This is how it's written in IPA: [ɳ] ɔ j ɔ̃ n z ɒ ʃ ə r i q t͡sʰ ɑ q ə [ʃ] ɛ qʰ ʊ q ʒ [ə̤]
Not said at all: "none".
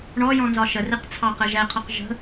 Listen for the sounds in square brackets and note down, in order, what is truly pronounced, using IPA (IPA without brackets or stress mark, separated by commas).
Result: ɳ, ʒ, ə̤